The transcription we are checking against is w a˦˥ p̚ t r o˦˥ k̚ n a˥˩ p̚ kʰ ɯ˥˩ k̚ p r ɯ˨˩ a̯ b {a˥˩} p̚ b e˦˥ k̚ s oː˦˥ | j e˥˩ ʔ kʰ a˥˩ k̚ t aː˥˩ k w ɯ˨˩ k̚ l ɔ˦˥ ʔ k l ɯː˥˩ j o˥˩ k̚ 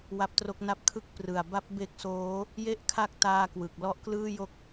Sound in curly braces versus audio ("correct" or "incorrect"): incorrect